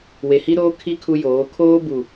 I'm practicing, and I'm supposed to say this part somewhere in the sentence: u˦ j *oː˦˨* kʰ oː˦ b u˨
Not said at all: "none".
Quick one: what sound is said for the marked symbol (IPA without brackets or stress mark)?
oː˨˦